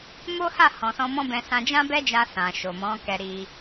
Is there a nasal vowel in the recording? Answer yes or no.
yes